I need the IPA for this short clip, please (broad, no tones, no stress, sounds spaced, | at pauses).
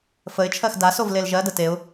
f ə ɪ̯ t͡ʃʰ ɜ x d a s o v l e l ʒ ɜ d ə t e ʊ̯